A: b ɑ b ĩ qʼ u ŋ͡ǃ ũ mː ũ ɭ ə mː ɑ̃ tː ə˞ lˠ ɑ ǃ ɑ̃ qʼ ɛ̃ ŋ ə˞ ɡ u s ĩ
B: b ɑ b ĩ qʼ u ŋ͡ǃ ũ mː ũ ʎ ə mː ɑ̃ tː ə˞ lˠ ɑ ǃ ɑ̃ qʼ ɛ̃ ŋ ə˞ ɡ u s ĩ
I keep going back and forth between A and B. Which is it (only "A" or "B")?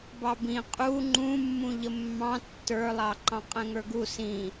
B